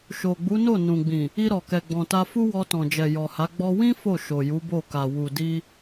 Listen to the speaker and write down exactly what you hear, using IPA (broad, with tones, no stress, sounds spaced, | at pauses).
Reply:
ʃ o˨ ɡ͡b u˨˦ n o˦˨ n ũ˨ ɡ͡b ĩ˨ | i˧ ɾ ɔ˨ k ɛ˨ ɡ͡b ɔ̃˨ t a˧ f u˦ w ɔ˧ t ɔ̃˨ d͡ʒ ɛ˨ j ɔ˨ h a˨˦ ɡ͡b ɔ˦ w ĩ˦ f o˦˨ ʃ o˨ j u˨˦ b o˦˨ k a˨ w u˨ d i˧